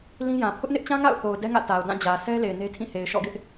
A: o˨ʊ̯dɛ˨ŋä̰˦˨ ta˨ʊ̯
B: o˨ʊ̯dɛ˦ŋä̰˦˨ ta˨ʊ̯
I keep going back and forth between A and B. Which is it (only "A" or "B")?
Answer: B